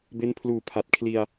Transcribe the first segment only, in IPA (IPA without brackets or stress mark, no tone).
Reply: b